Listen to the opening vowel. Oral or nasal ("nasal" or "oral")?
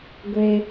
oral